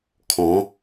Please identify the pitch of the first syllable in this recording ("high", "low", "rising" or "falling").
rising